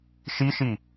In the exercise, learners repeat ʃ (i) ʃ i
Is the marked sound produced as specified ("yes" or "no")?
yes